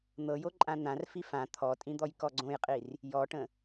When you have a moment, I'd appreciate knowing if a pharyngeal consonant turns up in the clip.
no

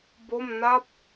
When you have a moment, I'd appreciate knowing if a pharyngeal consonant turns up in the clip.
no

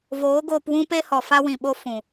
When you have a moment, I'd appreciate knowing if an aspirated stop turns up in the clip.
no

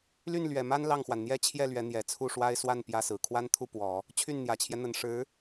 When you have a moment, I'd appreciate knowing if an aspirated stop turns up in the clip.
yes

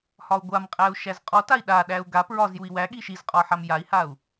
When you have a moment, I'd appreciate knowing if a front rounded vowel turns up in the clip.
no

